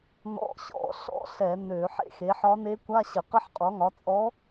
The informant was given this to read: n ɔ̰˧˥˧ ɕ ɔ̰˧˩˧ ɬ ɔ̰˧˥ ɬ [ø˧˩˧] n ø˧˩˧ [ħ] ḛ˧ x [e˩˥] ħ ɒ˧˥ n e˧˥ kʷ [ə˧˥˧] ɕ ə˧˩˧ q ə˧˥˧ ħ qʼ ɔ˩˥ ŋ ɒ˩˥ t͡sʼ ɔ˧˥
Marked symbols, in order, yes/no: no, yes, yes, no

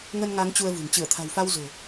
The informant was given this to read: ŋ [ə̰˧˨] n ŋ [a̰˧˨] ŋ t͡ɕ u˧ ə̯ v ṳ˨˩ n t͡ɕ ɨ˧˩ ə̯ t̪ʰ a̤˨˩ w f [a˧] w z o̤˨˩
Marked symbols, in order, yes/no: no, no, yes

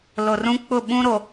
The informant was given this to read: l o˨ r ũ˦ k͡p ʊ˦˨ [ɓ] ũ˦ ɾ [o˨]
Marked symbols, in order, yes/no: yes, yes

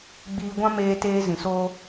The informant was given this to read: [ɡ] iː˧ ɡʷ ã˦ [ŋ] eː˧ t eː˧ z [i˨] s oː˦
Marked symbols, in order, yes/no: no, no, no

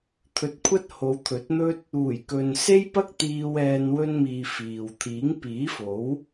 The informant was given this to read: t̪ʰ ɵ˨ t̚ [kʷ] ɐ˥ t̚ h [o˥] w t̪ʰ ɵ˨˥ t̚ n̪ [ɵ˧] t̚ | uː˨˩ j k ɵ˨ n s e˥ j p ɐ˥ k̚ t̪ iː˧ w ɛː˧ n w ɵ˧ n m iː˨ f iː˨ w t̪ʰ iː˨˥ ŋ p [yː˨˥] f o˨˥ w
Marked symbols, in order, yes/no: no, no, no, no

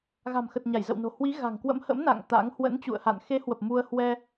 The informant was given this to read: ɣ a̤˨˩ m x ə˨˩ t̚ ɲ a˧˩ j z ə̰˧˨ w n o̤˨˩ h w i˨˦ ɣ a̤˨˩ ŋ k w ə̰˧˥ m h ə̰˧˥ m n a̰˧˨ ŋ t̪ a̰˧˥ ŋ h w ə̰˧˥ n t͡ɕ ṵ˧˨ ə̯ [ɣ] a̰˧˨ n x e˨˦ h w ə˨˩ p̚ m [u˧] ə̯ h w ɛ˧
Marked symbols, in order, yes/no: no, yes

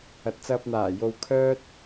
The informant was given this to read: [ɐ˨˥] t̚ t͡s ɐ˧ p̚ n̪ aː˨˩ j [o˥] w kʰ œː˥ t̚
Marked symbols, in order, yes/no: yes, no

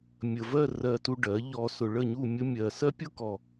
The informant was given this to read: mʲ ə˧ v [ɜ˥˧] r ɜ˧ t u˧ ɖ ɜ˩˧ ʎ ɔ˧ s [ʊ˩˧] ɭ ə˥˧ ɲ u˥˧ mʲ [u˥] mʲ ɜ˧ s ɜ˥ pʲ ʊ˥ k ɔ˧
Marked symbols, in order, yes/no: yes, no, no

